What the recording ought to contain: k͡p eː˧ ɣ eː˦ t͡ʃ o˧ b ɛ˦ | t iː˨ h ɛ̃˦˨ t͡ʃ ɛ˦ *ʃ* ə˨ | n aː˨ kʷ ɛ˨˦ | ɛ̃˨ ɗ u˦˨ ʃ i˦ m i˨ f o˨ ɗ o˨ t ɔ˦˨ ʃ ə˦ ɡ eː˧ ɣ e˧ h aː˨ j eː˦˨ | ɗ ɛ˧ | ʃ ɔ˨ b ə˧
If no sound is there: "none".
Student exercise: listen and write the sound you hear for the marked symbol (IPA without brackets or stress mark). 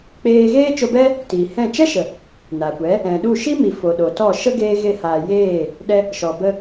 ʃ